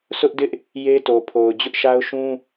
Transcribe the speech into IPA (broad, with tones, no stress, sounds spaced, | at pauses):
s ʊ˦ ʔ d ɪ˦ ʔ | j e˦ t o˨ pʰ o˨ ʊ̯ d͡ʑ ʊ˦ ʔ ʃ a˦ ʊ̯ ʃ ũ˦